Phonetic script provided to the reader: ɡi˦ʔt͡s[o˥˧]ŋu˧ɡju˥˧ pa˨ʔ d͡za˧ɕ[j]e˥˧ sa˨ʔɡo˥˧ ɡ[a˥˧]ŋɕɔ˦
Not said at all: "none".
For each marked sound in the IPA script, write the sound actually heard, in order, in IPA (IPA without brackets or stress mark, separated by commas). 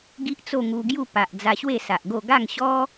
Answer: o˥˧, w, a˥˧